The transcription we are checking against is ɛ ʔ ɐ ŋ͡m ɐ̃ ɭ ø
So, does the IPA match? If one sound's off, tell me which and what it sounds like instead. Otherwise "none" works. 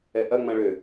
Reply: none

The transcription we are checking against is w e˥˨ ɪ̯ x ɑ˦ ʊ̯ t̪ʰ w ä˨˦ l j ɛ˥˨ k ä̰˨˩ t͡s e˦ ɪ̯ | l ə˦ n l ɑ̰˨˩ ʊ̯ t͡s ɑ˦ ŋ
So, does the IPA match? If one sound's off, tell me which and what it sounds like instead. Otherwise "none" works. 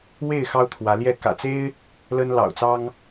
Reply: none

